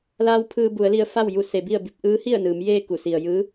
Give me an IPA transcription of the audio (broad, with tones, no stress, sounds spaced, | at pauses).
l aː˧ w pʰ ɯː˧ b u˩˧ ə̯ l i˧ ə̯ f a˥˨ w j u˥˨ s e˩˧ b i˥˨ ə̯ b i˧ p̚ ʔ ɯː˧˥ h i˥˨ ə̯ n ɯː˩˧ m j eː˥˨ k u˧˩ s i˩ ə̯ j ɯː˧˥